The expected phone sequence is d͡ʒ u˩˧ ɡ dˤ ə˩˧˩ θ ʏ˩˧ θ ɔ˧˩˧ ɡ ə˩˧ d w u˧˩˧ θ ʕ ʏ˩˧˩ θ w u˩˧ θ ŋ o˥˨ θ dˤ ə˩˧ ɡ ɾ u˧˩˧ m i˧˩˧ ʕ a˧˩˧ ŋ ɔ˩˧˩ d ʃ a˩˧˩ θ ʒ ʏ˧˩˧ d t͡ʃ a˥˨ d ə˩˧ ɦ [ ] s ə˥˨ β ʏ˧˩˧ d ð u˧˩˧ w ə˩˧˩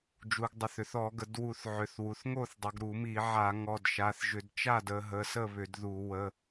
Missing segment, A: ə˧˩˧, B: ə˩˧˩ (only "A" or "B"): B